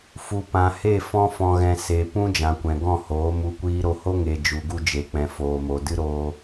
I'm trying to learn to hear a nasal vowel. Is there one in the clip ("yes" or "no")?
yes